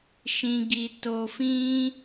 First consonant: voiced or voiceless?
voiceless